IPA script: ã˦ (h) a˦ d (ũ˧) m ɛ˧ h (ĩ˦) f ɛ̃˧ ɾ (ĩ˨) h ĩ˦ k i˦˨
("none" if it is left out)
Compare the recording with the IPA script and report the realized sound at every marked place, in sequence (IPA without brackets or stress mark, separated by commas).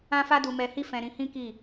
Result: f, u˧, i˦, ĩ˧